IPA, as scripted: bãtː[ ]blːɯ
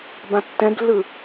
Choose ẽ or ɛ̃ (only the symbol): ɛ̃